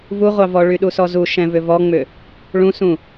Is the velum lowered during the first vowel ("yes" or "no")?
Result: no